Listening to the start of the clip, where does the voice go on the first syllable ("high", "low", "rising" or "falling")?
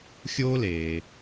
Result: high